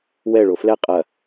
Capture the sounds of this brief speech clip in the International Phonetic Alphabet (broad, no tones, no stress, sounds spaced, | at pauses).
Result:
w ɛ ɭ o f l ɛ qʼ ɐ